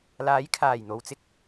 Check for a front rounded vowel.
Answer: absent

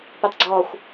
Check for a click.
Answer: present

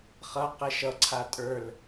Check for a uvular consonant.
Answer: present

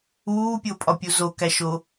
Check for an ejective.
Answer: present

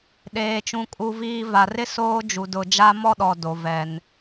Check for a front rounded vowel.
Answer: absent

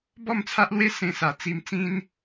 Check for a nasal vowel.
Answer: present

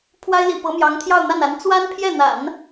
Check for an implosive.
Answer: absent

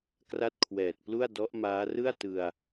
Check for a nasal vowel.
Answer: absent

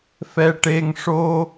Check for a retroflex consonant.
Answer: present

